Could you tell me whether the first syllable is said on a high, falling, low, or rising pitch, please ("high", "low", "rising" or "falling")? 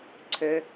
low